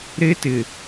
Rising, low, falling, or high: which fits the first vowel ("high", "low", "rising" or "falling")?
high